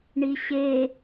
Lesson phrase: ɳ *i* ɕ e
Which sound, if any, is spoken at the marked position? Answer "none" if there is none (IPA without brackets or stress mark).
i